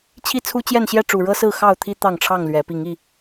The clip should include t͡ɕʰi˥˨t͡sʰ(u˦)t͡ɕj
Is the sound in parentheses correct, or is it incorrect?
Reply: correct